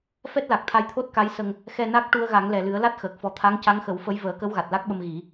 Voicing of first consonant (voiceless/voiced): voiceless